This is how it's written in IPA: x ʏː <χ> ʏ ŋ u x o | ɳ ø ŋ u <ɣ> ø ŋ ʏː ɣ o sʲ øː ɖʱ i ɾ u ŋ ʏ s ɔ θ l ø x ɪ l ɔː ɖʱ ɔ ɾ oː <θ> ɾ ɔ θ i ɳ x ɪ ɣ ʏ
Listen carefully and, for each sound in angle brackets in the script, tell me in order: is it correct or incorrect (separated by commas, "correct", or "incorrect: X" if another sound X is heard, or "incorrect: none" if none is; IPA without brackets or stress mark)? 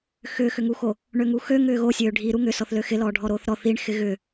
incorrect: x, incorrect: x, correct